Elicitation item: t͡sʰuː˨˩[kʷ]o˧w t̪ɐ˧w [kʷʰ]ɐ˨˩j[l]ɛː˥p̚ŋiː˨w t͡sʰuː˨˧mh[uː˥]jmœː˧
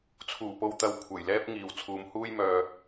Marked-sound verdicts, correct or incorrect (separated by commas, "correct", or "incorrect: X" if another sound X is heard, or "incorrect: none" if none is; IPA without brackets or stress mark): incorrect: p, correct, correct, correct